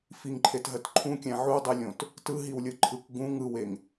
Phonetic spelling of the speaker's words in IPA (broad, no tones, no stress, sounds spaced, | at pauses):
f i ŋ ǃʰ e t ɦ ɜ t ǃʰ ũ kʲ æ̃ ʕ u dˤ e lʲ õ t | t ɯ ɦ i w lʲ ɯ ǃʰ ɯ k ɡ ũ ŋ ɯ w e ŋ